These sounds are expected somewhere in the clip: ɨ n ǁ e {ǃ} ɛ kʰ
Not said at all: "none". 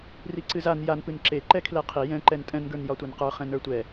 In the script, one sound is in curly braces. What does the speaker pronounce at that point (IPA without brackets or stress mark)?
ǃ